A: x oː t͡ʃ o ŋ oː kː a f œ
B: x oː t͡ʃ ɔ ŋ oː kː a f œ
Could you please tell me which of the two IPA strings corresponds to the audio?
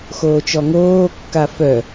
B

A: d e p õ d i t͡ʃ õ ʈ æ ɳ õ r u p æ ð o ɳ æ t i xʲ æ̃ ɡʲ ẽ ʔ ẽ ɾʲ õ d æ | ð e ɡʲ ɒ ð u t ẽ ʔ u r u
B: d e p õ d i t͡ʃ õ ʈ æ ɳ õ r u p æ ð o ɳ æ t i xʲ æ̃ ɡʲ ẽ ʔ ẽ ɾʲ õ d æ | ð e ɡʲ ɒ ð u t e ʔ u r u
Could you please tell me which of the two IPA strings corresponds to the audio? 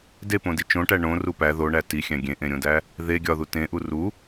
A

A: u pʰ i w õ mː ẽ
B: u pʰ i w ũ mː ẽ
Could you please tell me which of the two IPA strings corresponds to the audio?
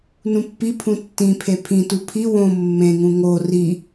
A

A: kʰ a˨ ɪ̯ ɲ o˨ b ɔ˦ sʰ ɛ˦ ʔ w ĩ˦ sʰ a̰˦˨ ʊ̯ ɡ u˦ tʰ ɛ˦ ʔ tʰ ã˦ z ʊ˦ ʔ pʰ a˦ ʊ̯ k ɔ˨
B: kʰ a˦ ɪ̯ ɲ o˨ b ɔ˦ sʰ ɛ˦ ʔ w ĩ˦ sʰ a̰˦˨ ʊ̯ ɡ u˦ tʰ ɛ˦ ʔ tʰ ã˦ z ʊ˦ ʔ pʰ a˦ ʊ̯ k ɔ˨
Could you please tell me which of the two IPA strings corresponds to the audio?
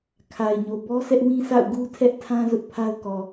A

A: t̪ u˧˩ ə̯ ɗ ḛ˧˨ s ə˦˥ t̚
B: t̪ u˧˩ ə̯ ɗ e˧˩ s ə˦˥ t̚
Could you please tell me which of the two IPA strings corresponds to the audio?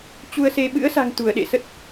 A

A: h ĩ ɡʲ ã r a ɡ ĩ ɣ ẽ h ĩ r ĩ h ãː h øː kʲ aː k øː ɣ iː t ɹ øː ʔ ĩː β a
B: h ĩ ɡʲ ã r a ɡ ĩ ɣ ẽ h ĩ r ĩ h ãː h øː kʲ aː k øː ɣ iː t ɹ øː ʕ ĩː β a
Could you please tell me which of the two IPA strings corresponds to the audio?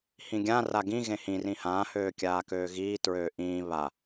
A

